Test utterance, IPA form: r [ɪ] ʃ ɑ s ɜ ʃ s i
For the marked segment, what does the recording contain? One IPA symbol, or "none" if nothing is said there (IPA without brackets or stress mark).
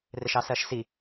ɪ